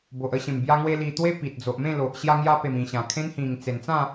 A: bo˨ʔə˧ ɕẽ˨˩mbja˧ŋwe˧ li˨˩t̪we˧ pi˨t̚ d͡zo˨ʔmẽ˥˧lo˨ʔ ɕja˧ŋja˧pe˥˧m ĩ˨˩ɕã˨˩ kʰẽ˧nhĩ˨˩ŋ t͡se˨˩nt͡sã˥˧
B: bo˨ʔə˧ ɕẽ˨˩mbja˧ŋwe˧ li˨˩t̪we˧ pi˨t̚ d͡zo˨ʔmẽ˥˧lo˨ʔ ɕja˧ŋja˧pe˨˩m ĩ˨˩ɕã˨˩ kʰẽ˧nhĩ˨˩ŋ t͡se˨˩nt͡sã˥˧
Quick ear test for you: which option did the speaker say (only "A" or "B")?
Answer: B